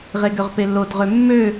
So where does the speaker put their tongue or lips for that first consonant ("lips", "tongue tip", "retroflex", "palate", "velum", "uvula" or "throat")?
uvula